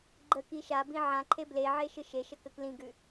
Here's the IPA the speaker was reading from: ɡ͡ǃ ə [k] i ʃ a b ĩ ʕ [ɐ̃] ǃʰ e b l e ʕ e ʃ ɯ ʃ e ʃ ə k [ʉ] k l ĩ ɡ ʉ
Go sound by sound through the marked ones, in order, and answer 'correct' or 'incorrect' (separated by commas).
correct, incorrect, incorrect